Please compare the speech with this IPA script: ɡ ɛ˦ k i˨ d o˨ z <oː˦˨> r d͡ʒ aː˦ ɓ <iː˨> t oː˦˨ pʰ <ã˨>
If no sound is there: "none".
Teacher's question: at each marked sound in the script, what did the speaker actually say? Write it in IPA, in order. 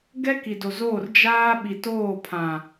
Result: oː˦˨, i˨, ã˨

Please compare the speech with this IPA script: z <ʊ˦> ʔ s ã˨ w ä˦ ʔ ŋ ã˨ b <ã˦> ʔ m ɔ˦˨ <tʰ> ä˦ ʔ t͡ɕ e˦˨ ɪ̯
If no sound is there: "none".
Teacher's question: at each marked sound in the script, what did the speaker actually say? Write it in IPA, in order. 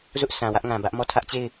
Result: ʊ˦, ä˦, tʰ

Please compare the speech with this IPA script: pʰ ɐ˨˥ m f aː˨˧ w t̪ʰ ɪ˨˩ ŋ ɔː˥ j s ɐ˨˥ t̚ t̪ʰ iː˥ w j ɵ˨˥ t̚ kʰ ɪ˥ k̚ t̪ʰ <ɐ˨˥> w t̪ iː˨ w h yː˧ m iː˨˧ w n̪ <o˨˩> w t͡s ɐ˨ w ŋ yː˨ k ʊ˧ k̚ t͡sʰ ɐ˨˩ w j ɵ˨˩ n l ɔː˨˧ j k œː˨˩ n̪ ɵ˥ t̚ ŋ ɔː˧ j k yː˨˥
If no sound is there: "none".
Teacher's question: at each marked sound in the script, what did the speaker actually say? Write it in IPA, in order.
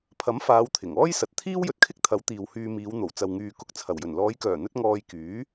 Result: ɐ˨˥, o˨˩

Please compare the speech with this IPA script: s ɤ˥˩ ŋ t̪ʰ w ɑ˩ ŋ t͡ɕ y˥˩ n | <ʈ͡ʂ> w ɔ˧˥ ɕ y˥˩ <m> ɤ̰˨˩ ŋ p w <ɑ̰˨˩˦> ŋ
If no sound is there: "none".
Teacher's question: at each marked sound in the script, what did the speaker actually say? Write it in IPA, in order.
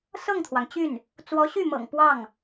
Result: t͡s, m, ɑ˥˩

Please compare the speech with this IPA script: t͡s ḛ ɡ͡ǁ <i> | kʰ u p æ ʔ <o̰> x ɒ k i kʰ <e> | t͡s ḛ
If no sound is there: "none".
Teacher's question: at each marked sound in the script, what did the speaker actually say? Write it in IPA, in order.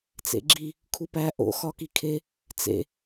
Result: i, o̰, e

